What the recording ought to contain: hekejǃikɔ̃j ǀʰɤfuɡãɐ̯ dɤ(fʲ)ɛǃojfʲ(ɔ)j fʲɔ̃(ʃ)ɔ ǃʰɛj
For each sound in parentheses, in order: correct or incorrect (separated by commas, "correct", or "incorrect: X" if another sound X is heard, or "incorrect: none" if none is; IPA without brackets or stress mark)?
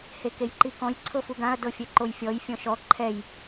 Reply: correct, correct, correct